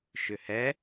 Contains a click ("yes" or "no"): no